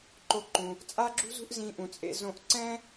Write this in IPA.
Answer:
ǃ o˧ ǃ ũ˩ | t͡sʼ a˥ ɡ͡ǁ ṳ˥ z ṳ˥ ʔ z ĩ˧ ʔ ũ˩ t͡sʼ ḛ˧ z õ˧ ʔ ǀ ɛ̃˥

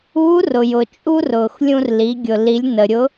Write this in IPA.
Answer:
uː˧˥ r ʊ˩ j ʊ˩ t͡ʃʼ u˥ r ʊː˩ x lʲ ũ˧ r l i˩˧ ɡʲ ʊ˩ l i˩˧ lʲ n ə˩ ɾʲ ʊ˧˥

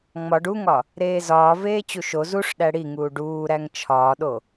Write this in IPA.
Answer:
ŋ͡m ɒ ɖ u ŋ ɒ | ɾ eː z ɒː v eː t͡ɕ u ʃ o z u ʂ ɗ æ ɽ i ŋ uː ɖ uː ɾ æ ŋ t͡ʃʰ ɒː ɗ o

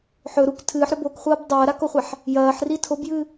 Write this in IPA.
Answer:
ħ ɵ ɾ u k tʰ ɨː ħ ɾ ɵ b o k χʷ ɐː b dˤ ɐː ɾ a k o χʷ a ħ | j ɐː ħ r i tʰ o b j ɨː

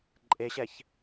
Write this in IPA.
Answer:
ǃʼ e ɕ ɛ ç

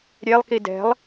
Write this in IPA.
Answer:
ɾʲ e lˠ k i d ɛ̤ lˠ

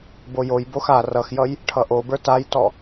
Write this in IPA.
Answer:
b o j o j b o x a r ʌ x j ʌ j | ʈʰ ʌ ʔ o b ə˞ t a j t ɔ

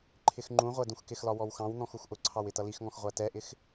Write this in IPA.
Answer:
ǃʰ ɪ x ŋ͡ǃ ũ ʁʷ ɛ d ũ x k ɪ x l ɒ w ɔ w x ɑ̃ w n̪ ɔ̃ x u x ʔ ʊ ǀʰ ɑ w ɪ t ʌ l i x ŋ ɔ̃ x ʁʷ æ t ɛ ʔ ɪ x

